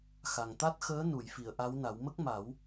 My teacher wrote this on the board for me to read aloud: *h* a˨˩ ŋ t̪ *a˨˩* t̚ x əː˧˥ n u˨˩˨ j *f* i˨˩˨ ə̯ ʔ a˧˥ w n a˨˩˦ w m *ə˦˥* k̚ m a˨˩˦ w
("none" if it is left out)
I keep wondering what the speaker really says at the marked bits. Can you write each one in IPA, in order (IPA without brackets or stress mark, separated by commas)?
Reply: x, a˦˥, f, ə˦˥